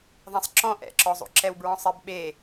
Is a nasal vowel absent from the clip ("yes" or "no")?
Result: no